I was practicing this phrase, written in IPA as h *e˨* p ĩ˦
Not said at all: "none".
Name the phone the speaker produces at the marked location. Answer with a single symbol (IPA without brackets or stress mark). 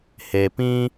e˨